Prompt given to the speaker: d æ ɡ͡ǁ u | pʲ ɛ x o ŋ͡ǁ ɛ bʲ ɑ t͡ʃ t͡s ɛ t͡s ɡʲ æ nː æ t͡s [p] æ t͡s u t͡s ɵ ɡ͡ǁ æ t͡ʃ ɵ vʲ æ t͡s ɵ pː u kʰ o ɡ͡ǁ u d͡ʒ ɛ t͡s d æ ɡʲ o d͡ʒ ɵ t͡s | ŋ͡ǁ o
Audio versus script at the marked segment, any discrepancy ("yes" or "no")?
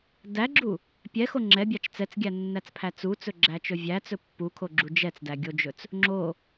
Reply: yes